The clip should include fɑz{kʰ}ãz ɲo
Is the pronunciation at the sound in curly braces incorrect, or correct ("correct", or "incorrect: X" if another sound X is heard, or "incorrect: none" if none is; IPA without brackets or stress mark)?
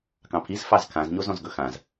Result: correct